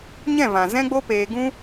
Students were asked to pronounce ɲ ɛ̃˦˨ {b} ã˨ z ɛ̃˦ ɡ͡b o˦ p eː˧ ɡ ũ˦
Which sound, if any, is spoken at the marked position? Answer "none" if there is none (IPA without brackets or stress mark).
v